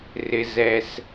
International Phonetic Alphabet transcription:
rɪ˧zɛ˧s

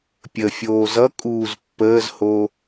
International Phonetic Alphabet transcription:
pʲəfʲoː zʌkʼuːz pːəːzho

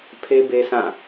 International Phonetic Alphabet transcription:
pʰe˦be˦sã˦˨

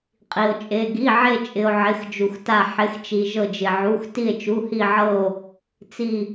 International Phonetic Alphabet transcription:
qʼi˧o̯t͡ʃʼe˧˥˧ ɡi˧˥˧ʕe˥˧t͡ʃʼɪ˧o̯ ʕɪ˧˥˧xd͡ʒu˧xta˥˧ ħɪ˧˥˧xt͡ʃi˧ ʒɤ˥˧d͡ʒɪ˧ʕu˧˥˧x ti˥˧e̯t͡ʃu˧˥˧hi˥˧ʕɤ˥˧o̯ | t͡si˥˧

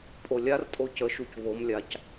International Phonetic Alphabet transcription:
pʼolʲartʼo cəʃuc βomlʲac

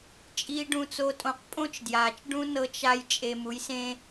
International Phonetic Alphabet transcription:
t͡ʃʼiː˨ɖũ˨t͡so˨tʼõ˨q pʼõ˦t͡ʃdjaː˨t͡ʃ ɖũ˦ nɤ˦t͡ʃa˦j t͡ʃʼe˦ mu˨˦jsẽ˦

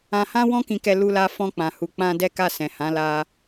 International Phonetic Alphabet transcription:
ã˧hã˦ wɔ̃˦kĩ˧kɛ˧ lu˧la˧ fɔ̃˧k͡pã˨hu˨ k͡pã˧ dɛ˦ka˦˨sɛ̃˨ hã˨˦la˧

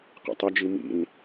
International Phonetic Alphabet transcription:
qɛ̰tˤɐd͡ʒi mḭn

